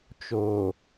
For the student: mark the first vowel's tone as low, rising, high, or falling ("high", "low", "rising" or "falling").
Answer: low